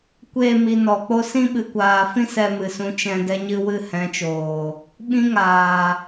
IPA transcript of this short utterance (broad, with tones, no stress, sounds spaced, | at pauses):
kʷ e˦˨ m i˨ n ɔ˨ k͡p o˦ s ĩ˦ ɓ ɨ˨ kʷ aː˨ f ĩ˦ s ɛ˧ m ɨ˨ s ũ˧ t͡ʃ ɛ̃˧ d ɛ˧ ɲ ɨ˧ w ɨ˦˨ h ɛ̃˨˦ t͡ʃ oː˨ | ɓ ĩ˦ ŋ aː˨